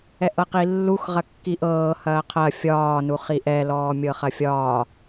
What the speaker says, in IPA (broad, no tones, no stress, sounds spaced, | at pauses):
ɛ ʔ ɤ q i lː u x ʁ ɐ kː i ʔ ɤː h ɐː qʰ ɐ fʲ ɒː n u χ i ʔ ɛ l ɔː mʲ ɤ χ ɐ fʲ ɒː